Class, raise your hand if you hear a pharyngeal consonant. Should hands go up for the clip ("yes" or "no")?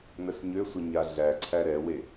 no